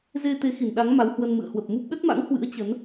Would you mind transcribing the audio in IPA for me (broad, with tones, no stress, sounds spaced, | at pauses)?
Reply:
z e˧ t̪ e˨˦ x i˧˩ n ɗ a˨˦ ŋ m a˨˦ w h w ə˧ n m ɨ̰˧˨ ə̯ h w ə˨˩ p̚ m u˦˥ p̚ ɗ ə˦˥ t̚ m a̰˧˥ ŋ h w ɨ̰˧˥ ə̯ t͡ɕ ə˨˦ n